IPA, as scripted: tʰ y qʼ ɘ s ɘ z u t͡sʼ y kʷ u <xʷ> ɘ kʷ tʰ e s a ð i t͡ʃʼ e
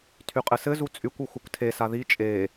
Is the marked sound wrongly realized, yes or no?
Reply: no